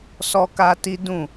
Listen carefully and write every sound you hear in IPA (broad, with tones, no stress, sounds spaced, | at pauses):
s ɔ˦ k a˦ t i˦ d ũ˦˨